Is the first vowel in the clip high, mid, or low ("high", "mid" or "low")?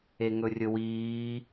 mid